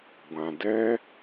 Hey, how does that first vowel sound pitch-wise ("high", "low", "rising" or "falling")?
low